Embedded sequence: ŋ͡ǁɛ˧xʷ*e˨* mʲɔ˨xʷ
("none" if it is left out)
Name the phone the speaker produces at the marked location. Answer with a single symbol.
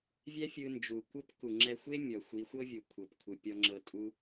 e˦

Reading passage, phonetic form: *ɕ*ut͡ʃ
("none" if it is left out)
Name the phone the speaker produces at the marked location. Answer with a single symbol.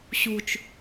ɕ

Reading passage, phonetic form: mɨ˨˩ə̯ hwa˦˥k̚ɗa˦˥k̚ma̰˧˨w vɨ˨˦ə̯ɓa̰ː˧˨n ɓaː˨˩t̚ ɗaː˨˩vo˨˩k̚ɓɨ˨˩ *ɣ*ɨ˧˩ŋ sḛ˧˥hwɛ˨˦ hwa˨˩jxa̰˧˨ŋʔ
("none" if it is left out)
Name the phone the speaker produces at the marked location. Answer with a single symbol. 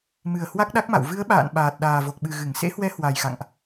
ɣ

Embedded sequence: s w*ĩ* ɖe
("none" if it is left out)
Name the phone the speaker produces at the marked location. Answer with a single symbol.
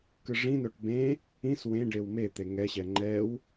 ẽ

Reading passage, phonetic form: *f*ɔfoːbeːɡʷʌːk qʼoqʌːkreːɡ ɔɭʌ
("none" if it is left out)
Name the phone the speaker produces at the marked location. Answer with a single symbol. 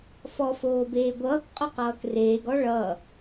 f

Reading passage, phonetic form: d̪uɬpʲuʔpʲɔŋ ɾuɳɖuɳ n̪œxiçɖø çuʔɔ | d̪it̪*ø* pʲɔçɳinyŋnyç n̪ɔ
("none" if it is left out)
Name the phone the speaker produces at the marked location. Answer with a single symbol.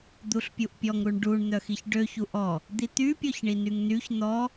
y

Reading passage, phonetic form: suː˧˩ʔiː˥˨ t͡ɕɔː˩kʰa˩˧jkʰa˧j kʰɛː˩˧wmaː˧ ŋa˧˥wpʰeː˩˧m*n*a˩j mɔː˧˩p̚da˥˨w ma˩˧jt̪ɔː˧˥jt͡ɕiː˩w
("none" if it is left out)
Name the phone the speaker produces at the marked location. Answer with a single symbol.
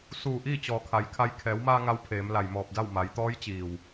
l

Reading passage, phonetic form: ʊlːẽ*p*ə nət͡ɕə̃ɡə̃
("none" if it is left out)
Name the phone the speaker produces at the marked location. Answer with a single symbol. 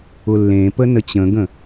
p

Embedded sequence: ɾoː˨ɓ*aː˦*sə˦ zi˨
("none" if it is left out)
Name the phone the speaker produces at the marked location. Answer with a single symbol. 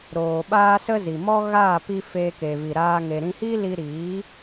aː˦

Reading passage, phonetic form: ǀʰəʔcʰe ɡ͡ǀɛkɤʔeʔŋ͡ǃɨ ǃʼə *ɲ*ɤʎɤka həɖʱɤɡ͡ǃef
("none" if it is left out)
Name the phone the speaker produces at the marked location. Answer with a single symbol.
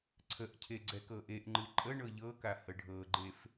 ɳ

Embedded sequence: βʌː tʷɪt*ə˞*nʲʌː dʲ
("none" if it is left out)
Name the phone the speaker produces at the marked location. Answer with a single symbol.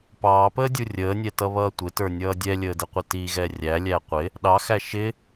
ə˞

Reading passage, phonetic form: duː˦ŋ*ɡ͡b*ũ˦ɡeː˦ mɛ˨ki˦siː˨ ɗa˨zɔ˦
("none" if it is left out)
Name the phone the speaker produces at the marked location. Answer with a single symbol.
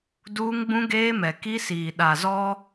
ɡ͡b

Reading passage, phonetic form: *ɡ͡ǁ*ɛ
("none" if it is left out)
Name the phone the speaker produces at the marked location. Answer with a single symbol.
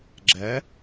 ɡ͡ǁ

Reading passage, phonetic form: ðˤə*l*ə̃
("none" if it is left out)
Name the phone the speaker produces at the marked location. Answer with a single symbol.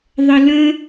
l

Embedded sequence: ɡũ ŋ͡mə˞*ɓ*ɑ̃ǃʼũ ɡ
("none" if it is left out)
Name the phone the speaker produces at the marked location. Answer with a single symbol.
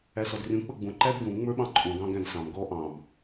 ɓ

